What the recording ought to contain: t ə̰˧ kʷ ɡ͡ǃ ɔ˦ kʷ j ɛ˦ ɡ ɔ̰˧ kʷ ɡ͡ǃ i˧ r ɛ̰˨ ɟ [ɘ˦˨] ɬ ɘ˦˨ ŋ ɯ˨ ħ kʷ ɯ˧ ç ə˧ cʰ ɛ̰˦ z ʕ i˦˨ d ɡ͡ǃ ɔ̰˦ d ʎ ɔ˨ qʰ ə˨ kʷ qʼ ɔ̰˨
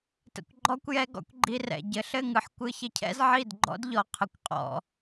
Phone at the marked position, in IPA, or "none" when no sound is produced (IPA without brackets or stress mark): ɘ˨